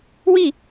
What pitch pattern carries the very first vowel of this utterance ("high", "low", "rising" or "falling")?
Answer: falling